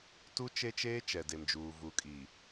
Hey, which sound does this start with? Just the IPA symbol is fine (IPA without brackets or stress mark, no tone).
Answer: t